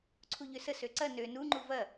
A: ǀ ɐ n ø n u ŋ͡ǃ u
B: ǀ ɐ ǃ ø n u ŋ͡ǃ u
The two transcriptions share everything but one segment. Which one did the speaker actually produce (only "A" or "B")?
A